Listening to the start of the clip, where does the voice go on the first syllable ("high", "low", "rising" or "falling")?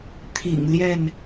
low